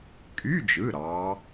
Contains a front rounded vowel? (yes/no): yes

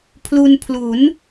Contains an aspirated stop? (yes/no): yes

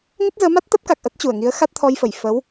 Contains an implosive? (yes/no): no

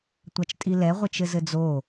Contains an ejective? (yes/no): yes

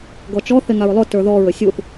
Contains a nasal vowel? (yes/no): no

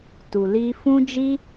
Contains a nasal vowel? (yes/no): yes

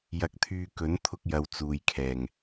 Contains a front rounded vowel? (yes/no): yes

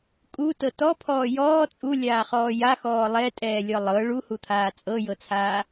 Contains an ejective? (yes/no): yes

